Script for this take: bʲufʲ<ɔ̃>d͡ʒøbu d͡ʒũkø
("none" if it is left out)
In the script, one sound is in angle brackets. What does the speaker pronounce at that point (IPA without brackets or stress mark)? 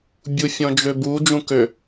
ɔ̃